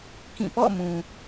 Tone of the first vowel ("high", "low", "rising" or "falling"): falling